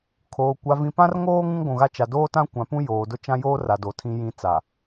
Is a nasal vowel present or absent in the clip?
present